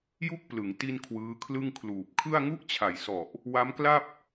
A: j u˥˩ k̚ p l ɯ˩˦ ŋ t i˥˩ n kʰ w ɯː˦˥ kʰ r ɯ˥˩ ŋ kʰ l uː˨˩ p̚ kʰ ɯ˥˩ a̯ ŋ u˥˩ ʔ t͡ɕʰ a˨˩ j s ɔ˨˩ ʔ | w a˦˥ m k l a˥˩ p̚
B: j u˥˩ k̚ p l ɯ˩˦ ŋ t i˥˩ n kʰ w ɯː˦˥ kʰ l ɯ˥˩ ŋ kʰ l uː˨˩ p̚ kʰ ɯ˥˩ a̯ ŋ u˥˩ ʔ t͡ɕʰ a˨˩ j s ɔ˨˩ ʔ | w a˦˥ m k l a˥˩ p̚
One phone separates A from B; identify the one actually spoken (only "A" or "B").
B